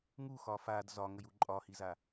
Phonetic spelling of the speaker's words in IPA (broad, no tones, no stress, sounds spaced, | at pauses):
ŋ u x ɒ f a d z ɒ ŋ ə j u ǃʼ ɒ h i z a